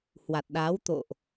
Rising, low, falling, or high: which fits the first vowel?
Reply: low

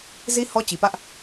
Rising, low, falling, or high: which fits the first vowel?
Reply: high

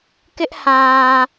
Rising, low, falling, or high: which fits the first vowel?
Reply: high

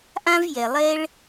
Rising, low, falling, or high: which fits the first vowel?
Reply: high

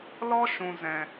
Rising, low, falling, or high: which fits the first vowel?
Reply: high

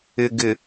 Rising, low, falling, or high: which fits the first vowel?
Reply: low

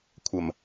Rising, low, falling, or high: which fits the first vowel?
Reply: low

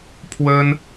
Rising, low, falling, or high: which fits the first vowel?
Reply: high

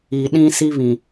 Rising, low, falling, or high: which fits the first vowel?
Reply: low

